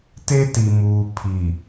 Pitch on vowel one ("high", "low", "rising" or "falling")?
high